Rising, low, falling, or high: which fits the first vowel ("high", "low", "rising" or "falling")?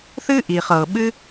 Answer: high